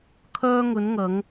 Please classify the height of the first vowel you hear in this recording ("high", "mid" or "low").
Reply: mid